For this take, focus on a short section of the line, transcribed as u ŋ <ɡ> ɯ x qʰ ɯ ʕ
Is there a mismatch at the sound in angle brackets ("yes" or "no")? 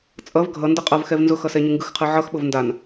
no